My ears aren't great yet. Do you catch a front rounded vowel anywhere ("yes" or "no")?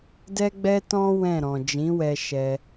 no